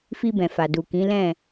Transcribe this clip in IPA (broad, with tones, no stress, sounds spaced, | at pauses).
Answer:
f i˧ b ɛ̃˨ f a˨ d u˨ k ĩ˨˦ l ɛ̃˦˨